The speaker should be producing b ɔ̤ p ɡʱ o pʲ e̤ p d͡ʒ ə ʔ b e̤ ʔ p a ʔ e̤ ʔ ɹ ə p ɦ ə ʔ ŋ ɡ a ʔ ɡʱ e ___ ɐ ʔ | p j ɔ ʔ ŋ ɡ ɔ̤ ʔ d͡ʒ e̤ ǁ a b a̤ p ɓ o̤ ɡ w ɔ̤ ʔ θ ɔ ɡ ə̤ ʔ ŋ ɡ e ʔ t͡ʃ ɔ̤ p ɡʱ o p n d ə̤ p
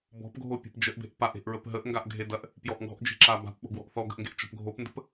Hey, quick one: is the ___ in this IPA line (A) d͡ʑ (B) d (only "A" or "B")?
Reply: B